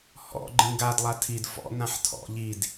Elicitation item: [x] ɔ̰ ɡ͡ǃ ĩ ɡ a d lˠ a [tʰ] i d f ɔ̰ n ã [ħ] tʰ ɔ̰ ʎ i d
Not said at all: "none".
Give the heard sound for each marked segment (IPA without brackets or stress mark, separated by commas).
h, tʰ, ħ